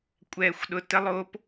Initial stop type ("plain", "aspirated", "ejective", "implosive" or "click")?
ejective